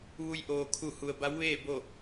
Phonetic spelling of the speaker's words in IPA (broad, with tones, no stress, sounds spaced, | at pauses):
ʋ u˧ j ʔ oː˩ kʰ u˧˩ h u˩ ə̯ b a˧˥ w ʋ eː˥˨ b o˥˨